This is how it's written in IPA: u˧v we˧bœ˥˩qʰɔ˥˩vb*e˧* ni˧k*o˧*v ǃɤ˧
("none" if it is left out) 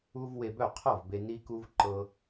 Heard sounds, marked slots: e˧, u˧

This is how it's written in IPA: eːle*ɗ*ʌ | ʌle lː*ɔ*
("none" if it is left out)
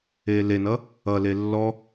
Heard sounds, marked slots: n, ɔ

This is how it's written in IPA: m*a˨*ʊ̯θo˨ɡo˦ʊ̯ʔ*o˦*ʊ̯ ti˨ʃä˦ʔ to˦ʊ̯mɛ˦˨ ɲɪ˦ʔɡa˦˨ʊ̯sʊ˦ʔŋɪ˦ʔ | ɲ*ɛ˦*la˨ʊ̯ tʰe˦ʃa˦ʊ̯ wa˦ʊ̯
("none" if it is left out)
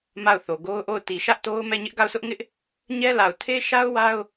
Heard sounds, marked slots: a˦˨, o˦˨, ɛ˦

